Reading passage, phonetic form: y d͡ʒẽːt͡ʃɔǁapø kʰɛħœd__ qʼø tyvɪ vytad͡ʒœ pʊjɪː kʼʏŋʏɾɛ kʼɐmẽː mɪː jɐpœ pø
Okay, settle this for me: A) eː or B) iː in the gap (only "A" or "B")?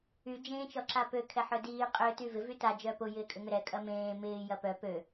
B